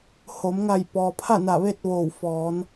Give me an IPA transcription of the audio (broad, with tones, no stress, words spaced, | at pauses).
ho˩˧m ŋa˧˩j pɔː˩pʰa˥˨ na˧˩ʋe˥˨t̚ ʋoː˧˩wfɔː˩˧n